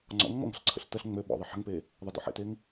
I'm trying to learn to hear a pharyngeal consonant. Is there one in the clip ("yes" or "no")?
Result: yes